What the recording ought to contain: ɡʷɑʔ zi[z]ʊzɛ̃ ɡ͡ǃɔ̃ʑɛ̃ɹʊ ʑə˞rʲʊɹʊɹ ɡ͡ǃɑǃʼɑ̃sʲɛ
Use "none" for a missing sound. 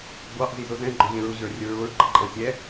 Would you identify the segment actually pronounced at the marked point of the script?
z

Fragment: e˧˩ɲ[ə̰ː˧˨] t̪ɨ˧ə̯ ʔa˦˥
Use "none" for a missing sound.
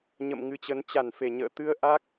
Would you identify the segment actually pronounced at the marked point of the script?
ə̰ː˧˨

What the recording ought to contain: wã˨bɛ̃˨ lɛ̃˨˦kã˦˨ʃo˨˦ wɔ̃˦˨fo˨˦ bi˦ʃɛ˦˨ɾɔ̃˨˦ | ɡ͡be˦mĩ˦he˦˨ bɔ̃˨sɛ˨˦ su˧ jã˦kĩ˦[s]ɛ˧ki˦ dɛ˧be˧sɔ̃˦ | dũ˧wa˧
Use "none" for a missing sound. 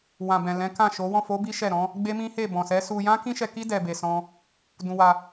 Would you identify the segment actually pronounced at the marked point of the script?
ʃ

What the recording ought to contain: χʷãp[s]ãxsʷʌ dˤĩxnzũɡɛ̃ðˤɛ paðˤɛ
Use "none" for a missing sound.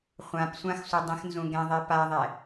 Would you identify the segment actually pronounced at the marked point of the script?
sʷ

